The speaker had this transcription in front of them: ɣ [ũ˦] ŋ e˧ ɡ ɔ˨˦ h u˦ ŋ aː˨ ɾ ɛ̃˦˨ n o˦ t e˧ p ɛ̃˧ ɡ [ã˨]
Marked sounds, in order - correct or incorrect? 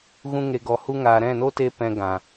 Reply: correct, correct

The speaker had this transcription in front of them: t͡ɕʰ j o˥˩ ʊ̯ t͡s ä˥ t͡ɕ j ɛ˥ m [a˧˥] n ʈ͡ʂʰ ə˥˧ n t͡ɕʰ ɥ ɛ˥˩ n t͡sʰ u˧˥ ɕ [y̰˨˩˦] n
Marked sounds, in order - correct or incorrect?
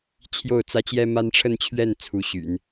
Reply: incorrect: a˥, correct

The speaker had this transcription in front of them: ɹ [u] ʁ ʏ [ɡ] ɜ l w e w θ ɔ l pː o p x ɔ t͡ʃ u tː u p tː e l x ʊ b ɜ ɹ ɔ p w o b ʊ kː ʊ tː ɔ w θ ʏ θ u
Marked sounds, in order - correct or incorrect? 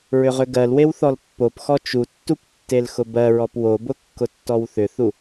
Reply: incorrect: ʏ, correct

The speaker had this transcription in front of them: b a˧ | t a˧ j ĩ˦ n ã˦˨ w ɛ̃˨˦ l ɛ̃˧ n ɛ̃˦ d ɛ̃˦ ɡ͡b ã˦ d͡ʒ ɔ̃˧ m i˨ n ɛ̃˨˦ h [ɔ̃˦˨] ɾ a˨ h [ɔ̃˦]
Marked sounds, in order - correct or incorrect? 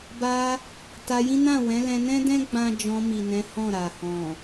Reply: correct, incorrect: ɔ̃˨

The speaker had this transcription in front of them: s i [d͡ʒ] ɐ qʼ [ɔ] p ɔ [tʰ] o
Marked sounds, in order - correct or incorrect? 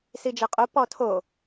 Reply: correct, incorrect: o, correct

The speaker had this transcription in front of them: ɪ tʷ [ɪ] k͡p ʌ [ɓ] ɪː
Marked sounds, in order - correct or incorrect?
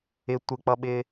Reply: correct, correct

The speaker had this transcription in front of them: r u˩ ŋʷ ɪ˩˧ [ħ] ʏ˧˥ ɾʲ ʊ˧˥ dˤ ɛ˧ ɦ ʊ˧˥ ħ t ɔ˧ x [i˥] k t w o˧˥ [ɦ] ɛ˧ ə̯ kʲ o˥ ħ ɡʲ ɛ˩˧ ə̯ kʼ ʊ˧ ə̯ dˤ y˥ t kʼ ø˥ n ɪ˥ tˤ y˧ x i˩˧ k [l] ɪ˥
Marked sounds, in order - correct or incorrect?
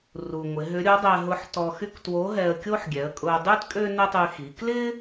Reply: incorrect: ɦ, incorrect: y˥, correct, correct

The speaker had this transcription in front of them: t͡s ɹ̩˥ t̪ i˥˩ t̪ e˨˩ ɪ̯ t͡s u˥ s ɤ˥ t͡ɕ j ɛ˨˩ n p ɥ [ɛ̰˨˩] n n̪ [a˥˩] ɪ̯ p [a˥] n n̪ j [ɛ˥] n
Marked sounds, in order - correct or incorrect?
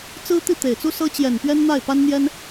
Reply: incorrect: ɛ˥, correct, correct, correct

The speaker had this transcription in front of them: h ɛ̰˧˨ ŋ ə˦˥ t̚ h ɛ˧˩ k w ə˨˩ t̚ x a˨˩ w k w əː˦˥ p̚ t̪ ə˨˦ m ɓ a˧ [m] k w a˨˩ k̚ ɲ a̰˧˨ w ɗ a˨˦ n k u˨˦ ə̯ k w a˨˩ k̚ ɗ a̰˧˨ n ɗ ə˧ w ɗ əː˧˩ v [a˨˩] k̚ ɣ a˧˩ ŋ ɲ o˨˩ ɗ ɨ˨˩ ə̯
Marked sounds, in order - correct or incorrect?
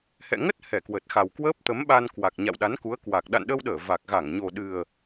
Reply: incorrect: n, correct

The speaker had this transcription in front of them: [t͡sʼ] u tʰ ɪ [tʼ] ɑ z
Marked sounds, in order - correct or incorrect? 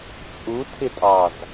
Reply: correct, correct

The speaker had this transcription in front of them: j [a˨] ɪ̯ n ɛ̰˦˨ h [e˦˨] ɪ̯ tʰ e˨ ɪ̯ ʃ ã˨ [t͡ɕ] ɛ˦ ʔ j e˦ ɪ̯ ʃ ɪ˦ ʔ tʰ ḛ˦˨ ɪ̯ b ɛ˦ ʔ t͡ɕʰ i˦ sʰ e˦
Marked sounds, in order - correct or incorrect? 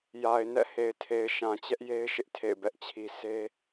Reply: correct, incorrect: e˨, correct

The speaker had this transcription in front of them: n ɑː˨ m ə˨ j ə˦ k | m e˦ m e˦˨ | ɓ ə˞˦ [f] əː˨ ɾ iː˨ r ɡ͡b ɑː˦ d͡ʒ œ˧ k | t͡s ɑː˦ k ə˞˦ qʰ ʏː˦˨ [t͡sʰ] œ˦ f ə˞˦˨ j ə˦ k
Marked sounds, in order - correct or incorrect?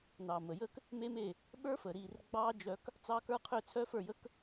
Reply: correct, correct

